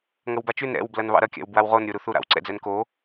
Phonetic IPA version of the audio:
ŋɐwbat͡ʃʉn ɾɛ̰w blɐnβɑ̰ɾɐ kʲa̰wbwawʁon ɾʲoɾuθuɾa̰w ǀɛ̰d͡zɛnko

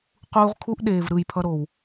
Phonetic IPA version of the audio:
quː˦ʁ kʰu˦ʔ ɗeː˨v ɾɯ˦˨jpʰʌ˦ ɾo˨w

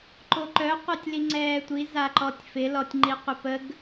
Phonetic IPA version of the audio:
ǃoǃœ qʷɛtʲliŋ͡ǀɛːtʷi zaǃɔtʲfɪ lɔtʲŋ͡ǃiqʷəpəɡ

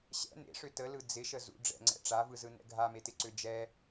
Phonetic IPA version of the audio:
ɕɛ̰ nḛʂʏ təlɯ d͡zɪʃə zṵ ɖ͡ʐɛ̰ŋ͡ǀɛ̰ ʈ͡ʂavɯzɯnɛ̰ ɡʱametɪǀʏ d͡ʒɛ

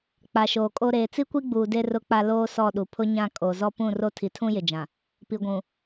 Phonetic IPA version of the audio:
k͡pa˨ʃoː˨kʼo˦ ɾeː˨t͡si˦kʷi˦ɡ͡buː˨ de˦rʊ˦k͡pa˦ loː˦sɔ˦˨ɗu˨ pʰʊ˦ɲã˦˨ kʼo˨ zɔ˦ pũ˦˨ro˦ tʰi˨tʰũ˦jɪ˨d͡ʒã˨ | pi˨ɡʷũ˨

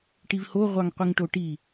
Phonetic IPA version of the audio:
ʈivho ʁʷɑŋqʷiŋʈoʈi

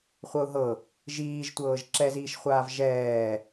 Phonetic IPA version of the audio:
χʷɤʊ̯ɦɤ | ʒiːʒtʷɤːʒ ǁɛziːʃχʷaːv ʒɛː

